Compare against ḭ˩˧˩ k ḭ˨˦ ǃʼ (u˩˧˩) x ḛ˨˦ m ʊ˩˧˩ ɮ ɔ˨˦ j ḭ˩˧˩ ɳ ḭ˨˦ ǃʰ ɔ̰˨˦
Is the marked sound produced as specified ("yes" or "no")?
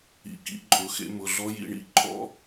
no